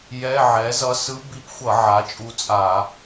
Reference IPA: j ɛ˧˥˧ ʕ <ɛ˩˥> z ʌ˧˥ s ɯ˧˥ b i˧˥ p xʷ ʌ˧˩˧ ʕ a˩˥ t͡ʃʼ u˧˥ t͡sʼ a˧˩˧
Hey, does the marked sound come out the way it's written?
yes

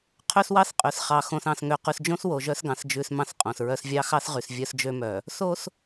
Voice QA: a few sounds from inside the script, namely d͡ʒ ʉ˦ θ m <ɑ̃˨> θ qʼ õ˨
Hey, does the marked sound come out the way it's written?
no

